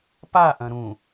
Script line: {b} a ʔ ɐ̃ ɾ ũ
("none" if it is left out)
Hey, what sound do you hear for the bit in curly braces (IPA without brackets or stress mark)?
p